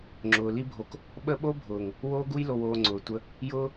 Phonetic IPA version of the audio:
ŋ͡ǁ ʊː˨ l i˦ bʱ o˧ k | ɓ ə˦ ɓ o˦ bʱ ʊː˨ ŋ | w oː˧ ɡ u˧ j l o˨ w oː˨ ŋ͡ǀ ʊː˨ tʷ ə˧ | j ʊː˦

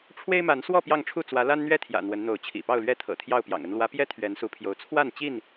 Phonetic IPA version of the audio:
ʈ͡ʂʰ w e˦ ɪ̯ m a˨˦ n s w ɔ˥˨ p j ɑ˥˨ ŋ ʈ͡ʂʰ u˥˨ t͡s w ä˨˦ l a˦ n n̪ ɥ ɛ˥˨ t̪ʰ j ä̰˨˩ n̪ w ə˨˦ n n̪ o˨˦ ʊ̯ t͡ɕʰ ḭ˨˩ p ɑ˥˨ ʊ̯ l ɥ ɛ˥˨ t̪ʰ ɤ̰˨˩ t̪ʰ j ɑ˥˨ ʊ̯ p j ɑ̰˨˩ ŋ ə˦ n l w ä˨˦ p j ɛ˦ t̪ʰ ɥ ɛ˨˦ n s u˨˦ pʰ j o˨˦ ʊ̯ t͡sʰ w a˥˨ n t͡ɕ i˥˨ n

